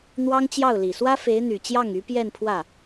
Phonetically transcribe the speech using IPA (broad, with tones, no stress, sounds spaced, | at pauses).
n̪ w ɑ˥ ŋ t͡ɕ j ɑ˥˩ ʊ̯ l i˨˩ s w ä˥ f e˧˥ ɪ̯ n̪ y˨˩ t͡ɕ j ɑ˥˩ ŋ y˧˥ p j ɛ˥˧ n pʰ w ä˥˩